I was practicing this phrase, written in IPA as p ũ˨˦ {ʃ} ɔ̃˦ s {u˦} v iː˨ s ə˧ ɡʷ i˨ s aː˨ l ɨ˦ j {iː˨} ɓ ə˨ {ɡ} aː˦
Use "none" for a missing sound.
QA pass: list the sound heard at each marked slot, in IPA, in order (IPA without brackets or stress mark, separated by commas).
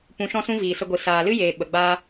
ʃ, ũ˦, eː˨, ɡ͡b